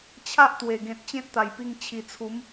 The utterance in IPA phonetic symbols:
t͡ɕʰ a˦ ʔ t̪ w e˨˩ ɡ ẽ˨ t̚ t͡ɕ ẽ˦ t̚ t̪ a˨˩ j p i˧ ŋ t͡ɕʰ i˨˩ t͡sʰ u˨˦ m

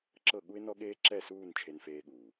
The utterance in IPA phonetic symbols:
ǁ ɤ˦˨ ɠ u˦ ɪ̯ n ɔ˦ ɠ eː˦ ǁ ɛ˦˨ s uː˦˨ n t͡ʃʰ e˧ n f eː˧ ɠ uː˨

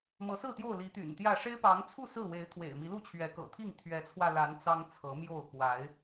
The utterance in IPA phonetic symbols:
m ɤ˨˦ s ɹ̩˥˨ t̪ j o˥˨ ʊ̯ l i˨˦ t̪ y̰˨˩ n t̪ j ä˥˨ ʂ e˦ ɪ̯ p ɑ˨˦ ŋ t͡sʰ u˥˨ s ɹ̩˥˨ w e˨˦ ɪ̯ t̪ʰ w ḛ˨˩ ɪ̯ m i˨˦ l u˥˨ t͡ɕʰ ɥ ɛ˨˦ k ɤ̰˨˩ t̪ʰ i˥˨ ŋ t̪ʰ ɥ ɛ˨˦ t͡sʰ w ä˧ l a˨˦ n t͡s ɑ˦ ŋ t͡sʰ ɤ˨˦ m j o˥˨ ʊ̯ k w a˨˦ ɪ̯

